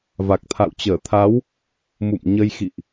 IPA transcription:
v a˨˩ k̚ t̪ʰ a̰˧˨ w t͡ɕ əː˧˩ t̪ʰ a˨˦ w | m ṵ˧˨ m ɲ ə˧ j x ḭ˧˨ ʔ

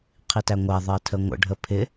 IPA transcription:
qʰ i t æ ŋʷ æ ðˤ ɜ tʰ ə ŋʷ ə̰ ɖʱ ə pʰ ɪ

